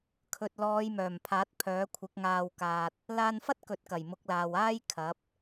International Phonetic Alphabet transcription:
kʰ ɵ˨ t̚ l ɔː˨˧ j m œː˨˩ m pʰ aː˨˥ t̚ pʰ œː˨˥ kʷʰ ɪ˨˥ k̚ ŋ aː˧ w k aː˧ t̚ | l aː˧ n f ɐ˥ t̚ k ɵ˨ t̚ k ɐ˨˩ j m ʊ˨˥ k̚ l aː˨ w aː˥ j kʰ ɐ˨˥ p̚

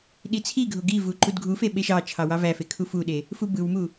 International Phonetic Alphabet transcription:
ɗ i t͡sʰ i ɡʱ o ɡ i v u ǃ u d ɡʱ u f e ɓ e ʃ ɑ t͡ʃʰ ɑ w ɑ v æ f e kʰ u f u ɗ e | f u b ɯ w m u

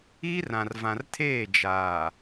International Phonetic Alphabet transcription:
iː˦ r ã˨ r v ã˨ r tʰ eː˦˨ d͡ʒ aː˨

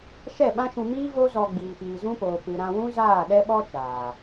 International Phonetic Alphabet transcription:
ʃ ɛ˦˨ ɓ ã˦ ʃ ũ˧ m iː˦ v o˦ z ɔ˧ ɡ͡b iː˨ p iː˨ z ũ˦ p oː˨ p ɨ˨ ɾ ã˧ w ũ˦ z aː˦˨ ɗ ɛ˦ ɓ ɔ˦ t͡ʃ aː˨

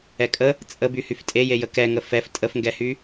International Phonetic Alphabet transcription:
ɛ kʼ ə | t͡sʼ ə b y h y f tʼ e j e j ə k ɛ ŋ ə f ɛ f tʼ ə f ŋ ɡ ɛ h y

